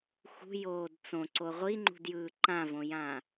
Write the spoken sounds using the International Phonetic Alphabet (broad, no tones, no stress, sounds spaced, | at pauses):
x ṳ j oː d t͡s õ ǀ o ʁʷ i ŋ͡ǃ ṳ d j ɯː ǃ ã v õ j ã